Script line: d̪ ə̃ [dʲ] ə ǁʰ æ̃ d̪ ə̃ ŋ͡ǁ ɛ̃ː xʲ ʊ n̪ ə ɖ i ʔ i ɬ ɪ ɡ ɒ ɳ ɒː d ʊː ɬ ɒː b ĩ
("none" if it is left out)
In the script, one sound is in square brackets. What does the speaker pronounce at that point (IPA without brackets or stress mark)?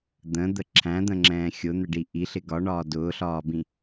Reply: d̪